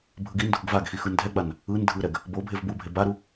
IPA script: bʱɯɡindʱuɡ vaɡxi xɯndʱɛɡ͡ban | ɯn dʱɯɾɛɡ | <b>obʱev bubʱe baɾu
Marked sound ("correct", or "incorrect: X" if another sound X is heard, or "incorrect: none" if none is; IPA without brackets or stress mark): correct